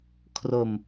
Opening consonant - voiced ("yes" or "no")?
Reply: no